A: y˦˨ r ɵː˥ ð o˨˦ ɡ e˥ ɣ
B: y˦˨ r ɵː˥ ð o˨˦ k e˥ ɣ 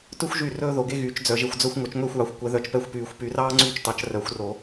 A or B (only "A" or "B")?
A